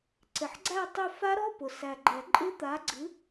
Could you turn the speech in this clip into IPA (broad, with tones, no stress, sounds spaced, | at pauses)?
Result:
ǀ ɪ˨˩ ħ ɡ͡ǀ æ˥˧ tˤ ʊ˥˧ f a˦˥ ɾ ɔ˧˥˧ p ʊ˨˩ s æ˨˩ ɡ͡ǃ ɛ˨˩˦ ǃʼ ɪ˦˥ t̪ a˨˥ ɡ͡ǀ ɨ˨˥